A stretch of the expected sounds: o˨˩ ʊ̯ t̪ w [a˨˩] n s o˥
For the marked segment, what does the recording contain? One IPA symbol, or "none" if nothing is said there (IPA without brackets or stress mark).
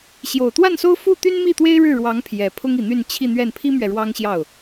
a˥˩